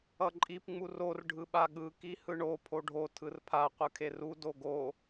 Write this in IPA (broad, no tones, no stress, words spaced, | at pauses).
ʌǃʼip ŋ͡muror ɖʱɯɓaɠɯ kihɯɳo pʰoɖʱo tʰɯrpʰa qʷɯkʰeru doɡo